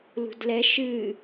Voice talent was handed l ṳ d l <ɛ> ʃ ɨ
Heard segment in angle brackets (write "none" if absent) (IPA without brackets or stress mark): ɛ